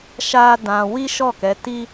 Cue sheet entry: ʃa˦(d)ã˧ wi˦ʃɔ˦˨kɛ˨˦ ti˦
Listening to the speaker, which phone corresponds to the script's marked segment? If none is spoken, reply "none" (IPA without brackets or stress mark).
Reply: d